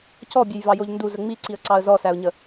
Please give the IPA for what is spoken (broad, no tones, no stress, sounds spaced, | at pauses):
c ɔ bʲ e j v ɑ j o ʎ n d u z ə ŋ͡m i ǀ i ə̯ ǀ ɑ ə̯ z ɔ s æ ʊ̯ ɲ ə